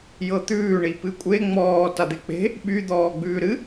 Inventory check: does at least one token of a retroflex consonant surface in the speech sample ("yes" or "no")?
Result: yes